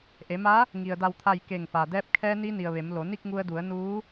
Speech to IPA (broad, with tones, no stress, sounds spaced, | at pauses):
ʔ e˩˧ m a˧˥ | ŋ i˩ ə̯ d a˧˩ w t̪ʰ a˧˩ j k e˧˩ ŋ f a˩ d ɛː˧ p̚ kʰ ɛː˧ n i˧ n i˩ ə̯ ʋ e˩˧ m l o˩˧ n i˥˨ k̚ ŋ u˧ ə̯ d u˩˧ ə̯ n uː˧˥